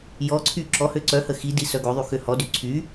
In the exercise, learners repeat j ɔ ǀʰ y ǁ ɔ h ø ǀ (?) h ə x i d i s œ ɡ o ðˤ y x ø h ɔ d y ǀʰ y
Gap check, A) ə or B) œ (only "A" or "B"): B